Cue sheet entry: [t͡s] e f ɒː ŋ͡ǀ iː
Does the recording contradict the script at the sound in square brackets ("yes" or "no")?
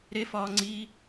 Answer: yes